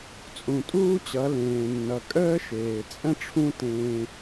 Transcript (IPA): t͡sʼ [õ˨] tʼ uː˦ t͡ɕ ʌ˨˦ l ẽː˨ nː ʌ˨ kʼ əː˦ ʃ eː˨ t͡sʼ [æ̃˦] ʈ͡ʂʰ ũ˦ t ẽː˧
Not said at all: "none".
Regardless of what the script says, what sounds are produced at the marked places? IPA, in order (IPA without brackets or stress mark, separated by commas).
ũ˨, ə̃˦